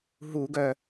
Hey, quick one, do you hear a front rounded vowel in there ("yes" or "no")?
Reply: yes